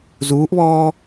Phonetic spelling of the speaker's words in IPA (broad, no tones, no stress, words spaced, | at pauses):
zuːʔβɔː